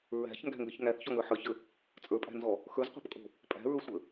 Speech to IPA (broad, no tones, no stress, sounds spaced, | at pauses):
ɹ æ̤ ç ŋ ɡ æ̤ ŋ ɡ ə ç ŋ æ θ ç ɔ ŋ ə˞ ħ ə˞ ç ə | t͡sʼ ə˞ pʼ æ̤ n z ɔ | x ə˞ z qʷ æ̤ p kʼ o̤ | pʼ æ̤ ɹ ə˞ sʷ ə